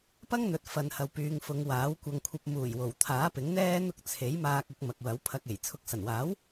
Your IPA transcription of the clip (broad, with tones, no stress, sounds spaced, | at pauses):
p ɐ˥ ŋ n̪ ɵ˨ t̚ f ɐ˨ n h ɐ˨ w p yː˨ ŋ f ʊ˨ ŋ w aː˨˥ w kʷ ɐ˧ ŋ kʷʰ ɐ˧ p̚ m uː˨˩ j w o˨˩ w t̪ʰ aː˨˥ p ɪ˨˥ ŋ n̪ ɛː˥ n̪ ʊ˥ k̚ t͡sʰ e˨˥ j m aː˧ k̚ ʊ˨˥ k̚ m ɐ˨ k̚ w ɐ˨˥ w pʰ ɐ˧ k̚ e˨˩ j t͡sʰ ʊ˨˥ k̚ s ɐ˨˩ n w aː˨˥ w